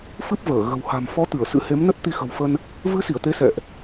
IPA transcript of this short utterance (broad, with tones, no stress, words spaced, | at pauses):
fɨ˦˥p̚vəː˧˩ ɣə̤˨˩w ha̤˨˩m fɔ˨˦t̪ɨ˧˩ə̯ sɨ̰˧˥he˨˦mnə˦˥t̚ t̪i˧xə̤˨˩wfə˧n | vɨ˨˦si˧˩ə̯ t̪e˨˦sɛ̰˧˨ʔ